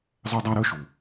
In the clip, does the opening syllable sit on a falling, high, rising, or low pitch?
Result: high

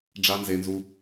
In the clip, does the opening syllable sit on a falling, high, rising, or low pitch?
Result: high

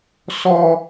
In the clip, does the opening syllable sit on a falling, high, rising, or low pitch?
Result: high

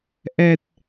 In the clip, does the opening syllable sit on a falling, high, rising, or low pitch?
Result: low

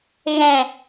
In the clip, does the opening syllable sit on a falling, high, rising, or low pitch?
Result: low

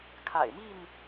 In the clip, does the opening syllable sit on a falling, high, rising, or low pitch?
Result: low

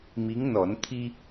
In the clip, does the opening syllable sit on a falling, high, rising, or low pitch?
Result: rising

